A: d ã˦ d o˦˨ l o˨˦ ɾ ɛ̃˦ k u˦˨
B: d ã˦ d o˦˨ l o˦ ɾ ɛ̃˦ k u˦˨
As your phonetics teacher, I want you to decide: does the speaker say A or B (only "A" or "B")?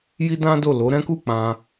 A